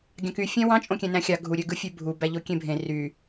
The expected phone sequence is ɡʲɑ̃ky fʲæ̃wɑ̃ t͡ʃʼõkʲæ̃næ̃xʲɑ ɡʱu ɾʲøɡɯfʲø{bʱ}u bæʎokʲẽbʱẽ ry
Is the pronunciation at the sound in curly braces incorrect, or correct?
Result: correct